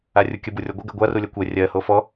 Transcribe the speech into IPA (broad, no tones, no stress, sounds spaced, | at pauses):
a rʲ u kʲ ə b u rʲ ɔ ɡʷ ə ɡ ɜ ɡʷ a r u lʲ ɜ kʷ ɛ rʲ ɜ h o f ɔ